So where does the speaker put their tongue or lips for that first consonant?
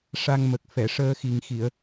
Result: retroflex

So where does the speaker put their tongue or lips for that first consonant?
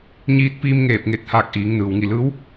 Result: palate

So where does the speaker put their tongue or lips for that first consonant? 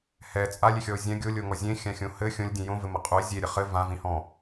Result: throat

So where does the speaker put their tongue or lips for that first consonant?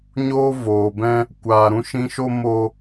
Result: palate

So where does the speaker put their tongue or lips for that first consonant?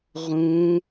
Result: uvula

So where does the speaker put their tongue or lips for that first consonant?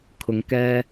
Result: velum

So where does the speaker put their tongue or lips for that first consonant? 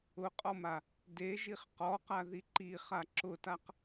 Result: uvula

